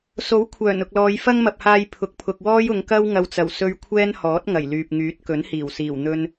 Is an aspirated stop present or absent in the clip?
present